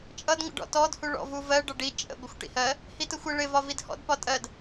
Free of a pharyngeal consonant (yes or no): yes